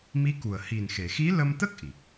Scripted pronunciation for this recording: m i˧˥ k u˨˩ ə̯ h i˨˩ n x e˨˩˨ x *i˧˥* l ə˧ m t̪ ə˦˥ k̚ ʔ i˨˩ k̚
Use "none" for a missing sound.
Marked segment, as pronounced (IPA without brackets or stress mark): i˧˥